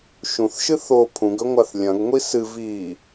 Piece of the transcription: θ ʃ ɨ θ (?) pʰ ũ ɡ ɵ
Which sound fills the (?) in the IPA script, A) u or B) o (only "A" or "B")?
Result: B